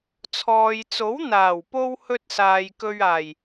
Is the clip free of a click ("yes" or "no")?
yes